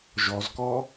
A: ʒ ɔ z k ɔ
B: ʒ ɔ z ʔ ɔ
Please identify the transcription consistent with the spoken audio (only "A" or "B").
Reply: A